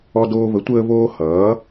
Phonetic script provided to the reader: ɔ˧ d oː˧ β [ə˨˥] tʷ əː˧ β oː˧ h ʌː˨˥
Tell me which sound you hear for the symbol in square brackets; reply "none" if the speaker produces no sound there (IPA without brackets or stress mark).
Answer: ə˨˥